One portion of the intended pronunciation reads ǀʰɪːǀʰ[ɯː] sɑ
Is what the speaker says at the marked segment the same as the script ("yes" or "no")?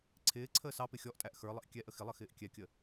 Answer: no